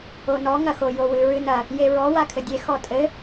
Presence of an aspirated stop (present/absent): present